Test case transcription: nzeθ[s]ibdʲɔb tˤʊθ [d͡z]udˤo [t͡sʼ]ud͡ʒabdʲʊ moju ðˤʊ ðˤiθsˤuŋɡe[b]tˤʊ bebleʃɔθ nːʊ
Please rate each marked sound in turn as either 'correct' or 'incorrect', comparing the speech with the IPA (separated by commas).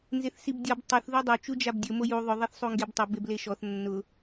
correct, incorrect, incorrect, correct